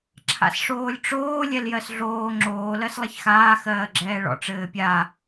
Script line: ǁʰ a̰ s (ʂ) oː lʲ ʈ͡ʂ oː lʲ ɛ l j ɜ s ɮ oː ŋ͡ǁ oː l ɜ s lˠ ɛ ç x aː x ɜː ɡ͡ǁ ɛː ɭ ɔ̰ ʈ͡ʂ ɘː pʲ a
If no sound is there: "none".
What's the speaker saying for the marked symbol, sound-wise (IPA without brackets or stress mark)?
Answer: ʂ